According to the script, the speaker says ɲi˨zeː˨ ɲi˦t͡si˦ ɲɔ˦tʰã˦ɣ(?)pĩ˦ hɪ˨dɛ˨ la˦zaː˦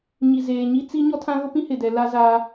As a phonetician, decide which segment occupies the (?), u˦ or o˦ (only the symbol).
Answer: o˦